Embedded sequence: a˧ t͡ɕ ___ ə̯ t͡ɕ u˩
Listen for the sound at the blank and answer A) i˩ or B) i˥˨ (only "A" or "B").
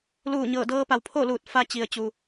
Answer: A